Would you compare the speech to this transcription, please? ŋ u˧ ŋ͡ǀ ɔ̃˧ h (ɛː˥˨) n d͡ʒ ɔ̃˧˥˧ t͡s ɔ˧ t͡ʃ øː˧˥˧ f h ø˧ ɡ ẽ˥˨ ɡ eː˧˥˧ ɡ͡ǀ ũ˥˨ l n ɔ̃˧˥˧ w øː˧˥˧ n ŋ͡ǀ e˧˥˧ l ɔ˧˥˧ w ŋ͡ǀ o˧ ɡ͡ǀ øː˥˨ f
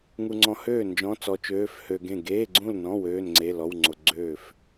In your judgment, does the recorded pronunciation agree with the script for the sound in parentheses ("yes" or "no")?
no